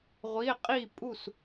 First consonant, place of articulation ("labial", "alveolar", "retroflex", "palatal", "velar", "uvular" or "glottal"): uvular